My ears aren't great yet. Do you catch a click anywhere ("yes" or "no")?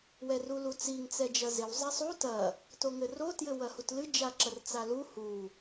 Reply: yes